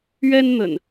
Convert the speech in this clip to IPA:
ɥ ɛ˦ n n̪ ə̰˨˩ n

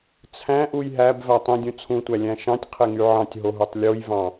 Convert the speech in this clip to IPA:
t͡sʰ æ̃ ʔ u j ɦ æ b v æ tˤ ĩ dʲ ũ t͡sʰ ũ tʷ æ lʲ æ̃ ʃ ɑ̃ tʲ qʰ e ŋ y ʕ ɑ̃ tʲ ɦ o ɦ u tˤ lʲ o j v ɑ̃

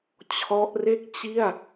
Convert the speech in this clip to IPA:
t͡ɕʰ ɔ˦˥ ʔ r e˥˩ k̚ t͡ɕ i˥˩ a̯

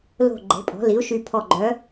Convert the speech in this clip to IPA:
l o̤˧˩ ɡ͡ǃ e̤˩˥ pʼ ɔ̤˩˥ l i˩˥ u̯ ʃ y˧˩ pʰ ɔ˧˩ ɡ͡ǃ œ˩˥

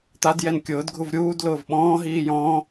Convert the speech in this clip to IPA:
t̪ a d j ɛ n kʲ ʊː d ɡʱ u v ɾʲ uː d l ʊː v ɓ ɔ̃ː ɦ iː j ɔ̃ː

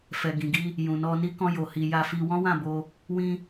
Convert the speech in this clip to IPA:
f ɛ˨ ɡ ĩ˨ ɡ i˧ | j ũ˨ n ɔ˧ n i˧ k ɔ̃˧ j o˨ h i˨ j a˧ f i˧ w ɔ̃˦ w ã˦˨ b o˧ | w ĩ˧

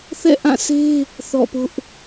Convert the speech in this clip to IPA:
θ ɛ̰˦˨ ʔ ã˦˨ s e˦ | θ ɔ̰˦˨ p ʊ˦ ʔ

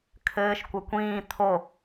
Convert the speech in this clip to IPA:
kʰ ɘː ʃ kʷ ɘ kʷ ĩː t̪ʰ o

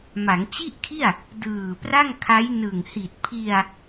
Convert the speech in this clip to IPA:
m a˩˦ ŋ t͡ɕ i˥˩ ʔ kʰ i˥˩ a̯ | d ɯː˨˩ p r a˥˩ ŋ kʰ a˦˥ j n ɯ˨˩ ŋ h i˨˩ t̚ pʰ i˧ a̯

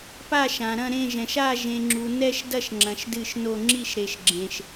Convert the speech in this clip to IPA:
p a˦˨ ʃ ã˨ ɾ ɐ̃˦˨ ɾ ẽ˦˨ ʒ ɛ̃˨ ʃ a˦˨ ʒ ẽ˨ ŋ͡ǁ u˨ n ɛ˦˨ ʃ d ɐ˦˨ ʃ ŋ͡ǁ ɐ̃˨ ʃ d ɨ˦˨ ʃ n o˦˨ ŋ͡ǁ i˦˨ ʃ ɾ e˨ ʃ ɡ͡ǁ ẽ˨ ʃ

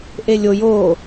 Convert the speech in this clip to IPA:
ʔ e lʲ o j o

